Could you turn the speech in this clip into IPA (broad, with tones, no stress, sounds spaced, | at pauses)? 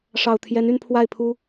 ʂ ɑ˨˩ ʊ̯ t̪ʰ j ɛ˧˥ n y˥˧ n pʰ w a˥˩ ɪ̯ pʰ u˥